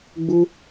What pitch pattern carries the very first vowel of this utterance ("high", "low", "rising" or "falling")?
high